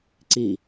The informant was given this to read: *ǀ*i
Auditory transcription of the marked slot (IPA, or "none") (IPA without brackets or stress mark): ǀ